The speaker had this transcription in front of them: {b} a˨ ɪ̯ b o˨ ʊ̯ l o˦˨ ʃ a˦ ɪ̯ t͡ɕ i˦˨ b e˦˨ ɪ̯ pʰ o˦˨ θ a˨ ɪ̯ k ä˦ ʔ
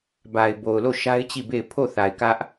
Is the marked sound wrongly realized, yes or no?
no